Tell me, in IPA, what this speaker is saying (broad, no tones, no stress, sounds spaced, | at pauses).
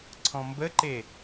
ǀʰ ɔ̃ m b ə ǃ e